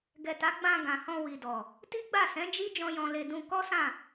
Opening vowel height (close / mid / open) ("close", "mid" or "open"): mid